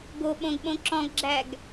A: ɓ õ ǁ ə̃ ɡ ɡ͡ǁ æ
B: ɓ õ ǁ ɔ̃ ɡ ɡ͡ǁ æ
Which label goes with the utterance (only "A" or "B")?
B